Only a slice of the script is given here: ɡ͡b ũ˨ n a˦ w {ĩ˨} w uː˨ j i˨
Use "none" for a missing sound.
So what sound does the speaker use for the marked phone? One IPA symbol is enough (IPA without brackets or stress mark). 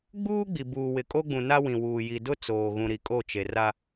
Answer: ĩ˨